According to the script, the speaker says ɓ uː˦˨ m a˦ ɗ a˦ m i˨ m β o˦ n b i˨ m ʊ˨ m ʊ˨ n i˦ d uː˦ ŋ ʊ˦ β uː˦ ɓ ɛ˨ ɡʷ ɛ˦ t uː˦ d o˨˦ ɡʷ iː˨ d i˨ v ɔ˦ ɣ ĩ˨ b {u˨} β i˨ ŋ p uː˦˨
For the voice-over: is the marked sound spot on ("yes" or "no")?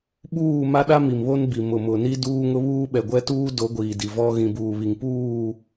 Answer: no